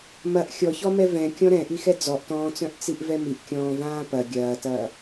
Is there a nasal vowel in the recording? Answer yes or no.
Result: yes